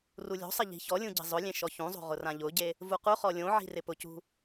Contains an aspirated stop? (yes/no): no